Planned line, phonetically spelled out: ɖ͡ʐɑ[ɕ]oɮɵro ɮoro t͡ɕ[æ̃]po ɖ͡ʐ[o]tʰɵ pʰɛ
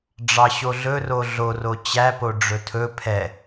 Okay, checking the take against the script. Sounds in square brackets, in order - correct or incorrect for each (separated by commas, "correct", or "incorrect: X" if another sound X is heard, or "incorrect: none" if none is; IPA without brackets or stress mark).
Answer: correct, incorrect: æ, incorrect: ɵ